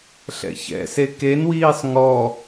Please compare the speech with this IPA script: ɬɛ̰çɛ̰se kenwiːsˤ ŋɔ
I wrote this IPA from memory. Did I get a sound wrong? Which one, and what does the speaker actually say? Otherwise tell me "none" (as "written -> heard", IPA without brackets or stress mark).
none